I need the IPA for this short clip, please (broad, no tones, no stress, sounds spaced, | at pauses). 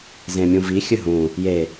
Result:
z ẽ mʲ ũ v i xʲ ɨ ɦ ũ | j e